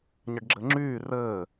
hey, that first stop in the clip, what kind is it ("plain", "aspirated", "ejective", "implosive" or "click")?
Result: plain